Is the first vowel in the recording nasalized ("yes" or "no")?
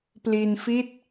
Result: no